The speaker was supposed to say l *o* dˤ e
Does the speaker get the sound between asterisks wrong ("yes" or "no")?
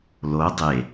no